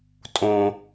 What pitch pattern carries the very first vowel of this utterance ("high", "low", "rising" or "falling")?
high